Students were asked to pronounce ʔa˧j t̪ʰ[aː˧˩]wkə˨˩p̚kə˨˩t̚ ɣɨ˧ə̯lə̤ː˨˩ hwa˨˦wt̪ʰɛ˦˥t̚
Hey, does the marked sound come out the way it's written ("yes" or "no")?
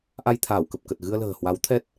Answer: yes